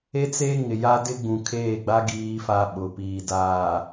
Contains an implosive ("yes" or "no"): yes